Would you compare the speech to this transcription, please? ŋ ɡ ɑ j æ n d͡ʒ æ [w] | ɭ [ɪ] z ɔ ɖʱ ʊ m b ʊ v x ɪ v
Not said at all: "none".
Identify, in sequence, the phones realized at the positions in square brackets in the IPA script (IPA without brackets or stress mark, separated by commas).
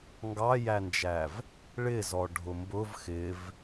v, ɪ